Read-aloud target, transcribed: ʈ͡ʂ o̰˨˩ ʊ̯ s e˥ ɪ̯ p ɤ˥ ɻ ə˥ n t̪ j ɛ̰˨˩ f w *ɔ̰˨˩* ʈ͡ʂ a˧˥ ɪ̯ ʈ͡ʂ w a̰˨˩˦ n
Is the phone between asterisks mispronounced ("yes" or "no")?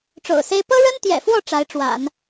yes